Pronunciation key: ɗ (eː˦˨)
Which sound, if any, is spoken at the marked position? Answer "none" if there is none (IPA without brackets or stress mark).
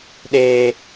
eː˦